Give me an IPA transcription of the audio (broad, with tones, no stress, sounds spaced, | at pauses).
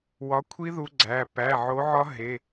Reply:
w ɒ˨˦ kʷʰ i˦˥ ð u˦˥ ɡ͡ǀ æ˩˧˩ p æ˩˧˩ ʕ o˨˦ ʕ ɒ˦˥ ɦ e˩˧˩